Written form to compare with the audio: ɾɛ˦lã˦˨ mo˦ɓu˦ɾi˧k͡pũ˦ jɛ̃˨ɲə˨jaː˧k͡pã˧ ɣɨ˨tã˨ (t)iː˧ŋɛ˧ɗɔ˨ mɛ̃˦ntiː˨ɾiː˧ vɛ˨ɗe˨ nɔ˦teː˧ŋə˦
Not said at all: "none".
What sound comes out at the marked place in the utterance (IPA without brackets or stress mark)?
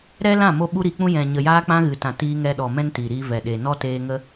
t